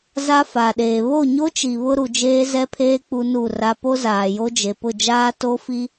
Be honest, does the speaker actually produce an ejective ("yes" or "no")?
no